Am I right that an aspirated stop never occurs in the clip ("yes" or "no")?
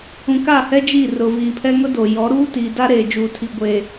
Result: no